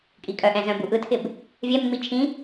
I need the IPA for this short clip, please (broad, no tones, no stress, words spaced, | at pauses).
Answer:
kʼikʼœʔɛ̃ zœ̃buʔɯtʰɪb | vʲɛmːi t͡ʃʰĩ